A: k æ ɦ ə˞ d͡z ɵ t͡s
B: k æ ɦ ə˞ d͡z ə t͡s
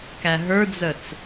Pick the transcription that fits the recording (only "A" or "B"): B